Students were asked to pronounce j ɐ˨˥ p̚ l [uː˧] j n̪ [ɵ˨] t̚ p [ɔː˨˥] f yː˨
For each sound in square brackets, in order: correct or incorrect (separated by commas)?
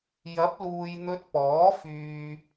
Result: incorrect, incorrect, correct